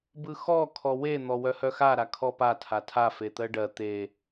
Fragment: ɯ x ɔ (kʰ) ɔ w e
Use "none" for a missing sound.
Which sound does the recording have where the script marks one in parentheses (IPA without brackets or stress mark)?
kʰ